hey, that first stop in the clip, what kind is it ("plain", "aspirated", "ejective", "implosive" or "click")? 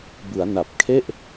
plain